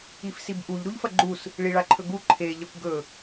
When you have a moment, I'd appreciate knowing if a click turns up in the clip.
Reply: yes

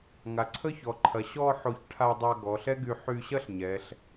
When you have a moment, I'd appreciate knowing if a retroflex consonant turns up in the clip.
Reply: yes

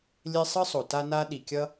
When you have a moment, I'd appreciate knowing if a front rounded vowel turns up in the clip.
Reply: no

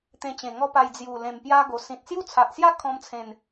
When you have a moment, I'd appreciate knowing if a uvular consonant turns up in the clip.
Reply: no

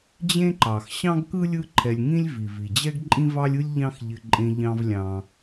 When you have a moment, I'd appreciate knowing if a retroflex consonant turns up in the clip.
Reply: no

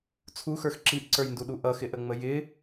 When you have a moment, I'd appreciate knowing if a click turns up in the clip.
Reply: yes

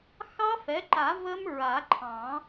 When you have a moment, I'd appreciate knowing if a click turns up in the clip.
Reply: yes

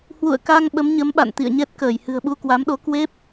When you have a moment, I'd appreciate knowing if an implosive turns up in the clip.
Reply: yes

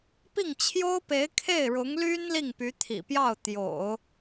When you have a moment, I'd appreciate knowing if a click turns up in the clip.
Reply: no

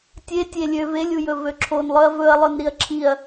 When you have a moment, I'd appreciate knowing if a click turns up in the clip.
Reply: yes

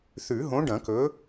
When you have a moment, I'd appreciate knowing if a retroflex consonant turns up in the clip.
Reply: yes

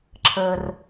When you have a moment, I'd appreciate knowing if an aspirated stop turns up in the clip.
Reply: yes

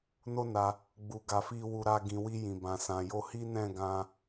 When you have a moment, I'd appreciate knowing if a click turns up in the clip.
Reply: no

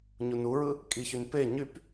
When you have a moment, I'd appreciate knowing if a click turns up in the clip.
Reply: no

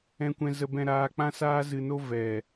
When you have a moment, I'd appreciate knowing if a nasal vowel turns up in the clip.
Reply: yes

